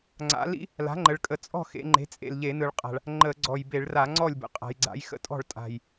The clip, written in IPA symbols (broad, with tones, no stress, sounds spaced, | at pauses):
ŋ͡ǀ a̰˩˥ l ḭ˩˥ | l a̤˩˥ ŋ͡ǃ ə˩˧ ɭ kʼ ə˩˧ t͡sʼ ɔ̤˥˩ x ḛ˩˧ ŋ͡ǃ e̤˩˥ t͡sʼ ḛ˨˩ l ʎ e˧˩˧ n ɯ˨˩ ɭ qʼ a̤˨˩ ɭ | ŋ͡ǃ ə˧˩˧ ɡ͡ǀ ɔ˨˩ j b e˧˩˧ ɭ r a˧˩˧ ŋ͡ǀ ɔ˥˩ lʲ b ə̰˩˧ qʼ a̤˩˧ j ɡ͡ǀ a̰˩˥ j x ə̰˧˩˧ tʼ ɔ̤˥˩ ɭ tʼ a̤˨˩ j